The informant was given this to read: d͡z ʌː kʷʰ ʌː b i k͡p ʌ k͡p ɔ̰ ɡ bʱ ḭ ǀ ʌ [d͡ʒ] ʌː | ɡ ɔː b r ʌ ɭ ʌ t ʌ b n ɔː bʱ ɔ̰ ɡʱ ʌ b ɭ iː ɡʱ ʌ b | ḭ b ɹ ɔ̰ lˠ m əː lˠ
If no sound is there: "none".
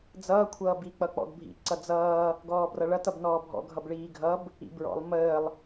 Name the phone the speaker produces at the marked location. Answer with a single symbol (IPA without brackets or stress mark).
d͡z